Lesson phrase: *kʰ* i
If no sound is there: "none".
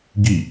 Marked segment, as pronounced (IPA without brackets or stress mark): ɡ